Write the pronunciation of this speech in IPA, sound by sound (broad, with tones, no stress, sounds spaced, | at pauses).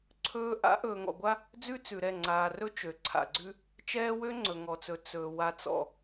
ǀʰ ɵː˦ ʔ a̰˨˦ ʔ ɵː˨ ŋ ɔ̰˨ ɡʷ a˦ | d͡z ʉ˦ t͡s ʉ˨ ɾ ɛ˦˨ ŋ͡ǀ aː˨ r ɵ˦ t͡ʃ ø˨ ǀʰ a̰˨ ɡ͡ǀ ʉ˦ | t͡ʃ ɛː˦ w ø˦ ŋ͡ǀ ɵ˨ ŋ ɔ˨ t͡s ɵ˨ t͡s ɵː˨ w a˨ t͡s ɔ̰˨